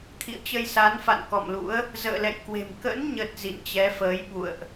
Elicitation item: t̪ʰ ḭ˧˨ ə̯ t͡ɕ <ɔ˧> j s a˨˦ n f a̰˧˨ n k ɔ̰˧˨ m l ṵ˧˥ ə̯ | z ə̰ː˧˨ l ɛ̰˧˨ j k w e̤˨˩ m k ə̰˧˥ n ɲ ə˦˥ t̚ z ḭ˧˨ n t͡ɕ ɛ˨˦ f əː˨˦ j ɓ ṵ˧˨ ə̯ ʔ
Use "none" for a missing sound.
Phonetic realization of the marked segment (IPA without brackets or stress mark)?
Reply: ə˧